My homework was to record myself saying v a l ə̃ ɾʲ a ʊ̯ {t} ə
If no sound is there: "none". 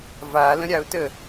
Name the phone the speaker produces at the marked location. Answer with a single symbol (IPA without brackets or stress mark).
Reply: t